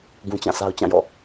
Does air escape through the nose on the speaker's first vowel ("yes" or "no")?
yes